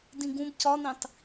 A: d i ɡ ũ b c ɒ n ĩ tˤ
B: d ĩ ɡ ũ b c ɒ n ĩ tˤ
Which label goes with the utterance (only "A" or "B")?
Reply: B